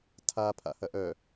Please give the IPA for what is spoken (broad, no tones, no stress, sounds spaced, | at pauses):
tʰ a pʰ a̰ h ɐ ʔ œ